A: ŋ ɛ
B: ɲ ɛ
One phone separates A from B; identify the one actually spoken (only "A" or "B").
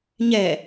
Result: B